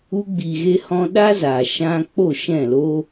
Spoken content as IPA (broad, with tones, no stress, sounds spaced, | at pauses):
u˧ ɡ͡b i˨ ɣ e˧ h ɔ̃˧ ɗ a˦ z a˨ ʃ ã˦ k͡p o˦˨ ʃ ɛ̃˦˨ l o˦